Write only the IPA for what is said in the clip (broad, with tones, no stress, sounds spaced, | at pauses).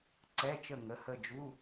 ǀ ɛ˧˥˧ t͡ʃ ə˦˨ ŋ ə˩˧˩ h ə˦˨ d͡ʒ u˧˥˧